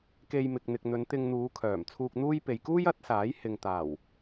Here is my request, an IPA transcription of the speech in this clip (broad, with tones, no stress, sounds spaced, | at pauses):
k e˧ j m ɪ˨ k̚ n̪ ɪ˨ k̚ n̪ ɵ˨˧ n t̪ ɪ˧ ŋ n̪ uː˨˧ kʰ œː˨˩ m t͡sʰ uː˧ k̚ n̪ uː˥ j p e˨ j k uː˥ j ɐ˨˥ t̚ s aː˨˥ j h ɪ˨ ŋ t̪ aː˨˩ w